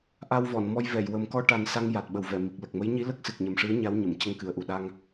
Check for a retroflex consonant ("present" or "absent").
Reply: present